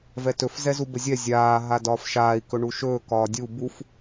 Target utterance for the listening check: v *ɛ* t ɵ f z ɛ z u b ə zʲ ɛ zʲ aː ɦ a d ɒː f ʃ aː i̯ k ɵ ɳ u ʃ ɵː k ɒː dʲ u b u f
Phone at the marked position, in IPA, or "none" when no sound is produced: ɛ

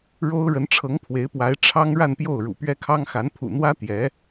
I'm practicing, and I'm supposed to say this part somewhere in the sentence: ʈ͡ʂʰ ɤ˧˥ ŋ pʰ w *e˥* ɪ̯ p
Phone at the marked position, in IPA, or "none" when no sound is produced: e˧˥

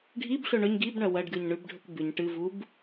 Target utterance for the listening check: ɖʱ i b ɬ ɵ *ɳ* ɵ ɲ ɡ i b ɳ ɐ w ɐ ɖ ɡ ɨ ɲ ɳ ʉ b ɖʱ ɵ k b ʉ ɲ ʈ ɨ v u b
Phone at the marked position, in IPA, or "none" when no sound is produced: ɳ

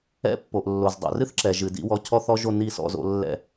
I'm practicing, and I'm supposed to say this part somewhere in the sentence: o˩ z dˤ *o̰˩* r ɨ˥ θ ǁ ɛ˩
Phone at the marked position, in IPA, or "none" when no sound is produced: o̰˩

